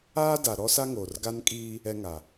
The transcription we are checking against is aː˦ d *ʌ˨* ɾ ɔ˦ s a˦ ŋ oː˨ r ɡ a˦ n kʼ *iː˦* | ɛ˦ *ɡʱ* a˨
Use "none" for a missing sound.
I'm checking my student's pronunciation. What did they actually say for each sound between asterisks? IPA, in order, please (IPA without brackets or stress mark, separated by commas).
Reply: a˨, iː˦, ŋ